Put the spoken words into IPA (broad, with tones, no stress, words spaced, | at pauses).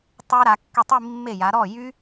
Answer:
tˤe˦˥ɾa˨˥kːy˥˩ tˤi˥˧mːe˥˩ja˨˥ ɾɔ˥˩ jy˦˥